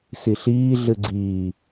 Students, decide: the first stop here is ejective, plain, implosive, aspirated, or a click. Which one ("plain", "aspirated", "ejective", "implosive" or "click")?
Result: click